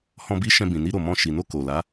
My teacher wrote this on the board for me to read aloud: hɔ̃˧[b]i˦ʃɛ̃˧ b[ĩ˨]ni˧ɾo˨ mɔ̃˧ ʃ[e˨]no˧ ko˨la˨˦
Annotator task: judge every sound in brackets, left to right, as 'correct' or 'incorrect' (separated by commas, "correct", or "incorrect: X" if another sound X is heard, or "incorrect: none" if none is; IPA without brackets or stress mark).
correct, correct, incorrect: i˨